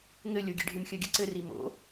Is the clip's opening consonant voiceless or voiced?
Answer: voiced